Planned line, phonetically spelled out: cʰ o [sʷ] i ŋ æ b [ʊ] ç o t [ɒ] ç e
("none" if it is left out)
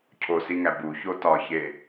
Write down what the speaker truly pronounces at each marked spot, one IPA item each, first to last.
s, u, ɒ

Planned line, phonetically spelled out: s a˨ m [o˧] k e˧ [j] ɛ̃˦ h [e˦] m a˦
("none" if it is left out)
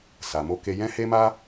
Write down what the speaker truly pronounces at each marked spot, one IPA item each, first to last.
o˧, j, e˦

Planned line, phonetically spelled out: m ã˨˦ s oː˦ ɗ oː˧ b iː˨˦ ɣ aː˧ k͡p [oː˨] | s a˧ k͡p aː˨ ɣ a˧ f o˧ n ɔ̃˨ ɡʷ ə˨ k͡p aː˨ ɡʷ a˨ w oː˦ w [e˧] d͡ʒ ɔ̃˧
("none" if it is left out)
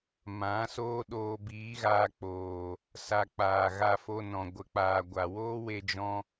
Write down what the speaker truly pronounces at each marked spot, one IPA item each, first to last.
oː˨, e˧

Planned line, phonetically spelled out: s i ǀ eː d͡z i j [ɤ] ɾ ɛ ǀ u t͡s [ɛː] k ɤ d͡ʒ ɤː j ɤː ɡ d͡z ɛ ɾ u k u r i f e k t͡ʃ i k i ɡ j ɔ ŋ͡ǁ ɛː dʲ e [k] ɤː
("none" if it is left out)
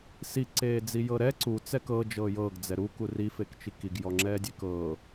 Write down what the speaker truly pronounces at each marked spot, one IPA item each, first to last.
ɤ, ɛ, k

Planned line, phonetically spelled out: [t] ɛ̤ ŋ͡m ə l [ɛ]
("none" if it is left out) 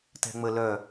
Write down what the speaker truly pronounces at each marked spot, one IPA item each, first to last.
t, œ

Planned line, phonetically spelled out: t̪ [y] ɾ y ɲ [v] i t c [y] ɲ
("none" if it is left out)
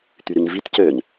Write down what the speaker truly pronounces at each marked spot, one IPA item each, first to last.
y, v, ø

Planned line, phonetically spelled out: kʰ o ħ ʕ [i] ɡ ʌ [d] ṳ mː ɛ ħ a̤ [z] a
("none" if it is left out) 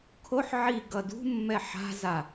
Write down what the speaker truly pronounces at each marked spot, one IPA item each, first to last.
i, d, z

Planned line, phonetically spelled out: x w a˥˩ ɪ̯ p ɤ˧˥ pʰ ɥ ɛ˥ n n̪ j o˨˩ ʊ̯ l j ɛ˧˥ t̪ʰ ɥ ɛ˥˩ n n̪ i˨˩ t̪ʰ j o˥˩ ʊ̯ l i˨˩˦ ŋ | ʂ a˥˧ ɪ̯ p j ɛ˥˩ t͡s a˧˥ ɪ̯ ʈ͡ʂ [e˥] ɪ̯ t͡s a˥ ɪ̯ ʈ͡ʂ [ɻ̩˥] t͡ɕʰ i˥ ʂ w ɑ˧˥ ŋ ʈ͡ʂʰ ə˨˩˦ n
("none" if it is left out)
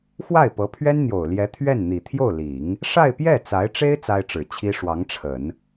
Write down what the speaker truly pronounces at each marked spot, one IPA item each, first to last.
e˥, ɻ̩˨˩

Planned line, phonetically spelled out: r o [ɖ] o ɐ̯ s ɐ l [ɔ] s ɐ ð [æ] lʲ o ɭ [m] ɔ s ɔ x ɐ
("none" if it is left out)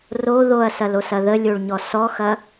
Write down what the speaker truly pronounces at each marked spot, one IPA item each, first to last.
ð, o, ə, ɲ

